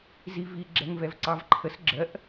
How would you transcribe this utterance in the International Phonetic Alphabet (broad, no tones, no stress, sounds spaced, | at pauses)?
z i v i ɡ͡ǁ ɛ ŋ v ɛ v ǀ ɑ v ǃʰ ə s ɡ͡ǁ ɜ ʔ